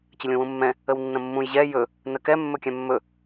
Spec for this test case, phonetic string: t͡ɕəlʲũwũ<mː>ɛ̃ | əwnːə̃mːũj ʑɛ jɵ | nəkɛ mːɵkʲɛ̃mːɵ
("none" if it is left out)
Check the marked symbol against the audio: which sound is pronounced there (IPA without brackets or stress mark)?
mː